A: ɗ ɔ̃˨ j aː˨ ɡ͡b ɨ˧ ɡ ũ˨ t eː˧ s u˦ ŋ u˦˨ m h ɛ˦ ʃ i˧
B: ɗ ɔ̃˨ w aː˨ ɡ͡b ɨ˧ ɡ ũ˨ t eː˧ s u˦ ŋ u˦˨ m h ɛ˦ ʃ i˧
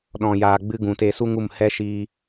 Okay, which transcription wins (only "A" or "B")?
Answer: A